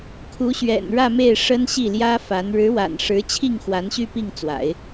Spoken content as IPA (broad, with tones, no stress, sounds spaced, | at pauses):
kʰ u˧˥ ɕ ɥ ɛ̰˨˩ n ɻ ä˥˧ m e˥˩ ɪ̯ ʂ ə˥ n ɕ i˥˩ l j ä˥ f a˧˥ n ɻ ɻ̩˧˥ w a̰˨˩ n ʂ ɻ̩˧˥ t͡ɕʰ i˥˩ ŋ x w a˧˥ n ɕ y˥˧ p i˥˩ ŋ t͡s w a̰˨˩˦ ɪ̯